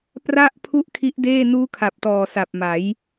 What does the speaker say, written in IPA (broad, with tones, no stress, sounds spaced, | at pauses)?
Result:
p r a˥˩ ʔ pʰ u˥˩ ʔ kʰ i˦˥ ʔ d eː˥˩ n uː˦˥ kʰ a˨˩ p̚ t ɔː˨˩ s a˨˩ p̚ m a˩˦ j